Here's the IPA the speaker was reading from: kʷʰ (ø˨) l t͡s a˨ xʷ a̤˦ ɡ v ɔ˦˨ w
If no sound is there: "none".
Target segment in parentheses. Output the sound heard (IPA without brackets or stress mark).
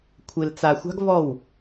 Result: e˨